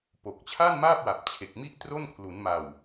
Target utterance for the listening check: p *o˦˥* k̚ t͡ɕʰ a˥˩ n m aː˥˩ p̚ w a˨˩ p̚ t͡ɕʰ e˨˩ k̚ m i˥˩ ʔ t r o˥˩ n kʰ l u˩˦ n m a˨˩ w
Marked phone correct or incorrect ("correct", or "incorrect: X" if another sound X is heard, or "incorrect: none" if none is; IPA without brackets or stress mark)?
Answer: incorrect: o˨˩